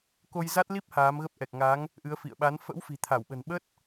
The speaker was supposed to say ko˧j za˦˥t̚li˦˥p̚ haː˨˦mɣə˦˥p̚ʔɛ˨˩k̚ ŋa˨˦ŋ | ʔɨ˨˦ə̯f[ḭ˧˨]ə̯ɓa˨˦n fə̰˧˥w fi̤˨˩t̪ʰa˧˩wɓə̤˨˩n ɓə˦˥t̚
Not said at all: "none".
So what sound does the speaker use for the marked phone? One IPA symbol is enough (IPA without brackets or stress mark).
ḭ˧˨